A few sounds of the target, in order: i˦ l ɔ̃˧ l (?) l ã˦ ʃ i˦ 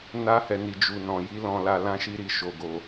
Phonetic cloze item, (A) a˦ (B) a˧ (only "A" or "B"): B